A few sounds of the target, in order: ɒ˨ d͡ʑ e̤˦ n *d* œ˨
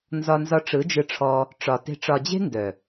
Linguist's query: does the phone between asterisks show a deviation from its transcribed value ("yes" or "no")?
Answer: no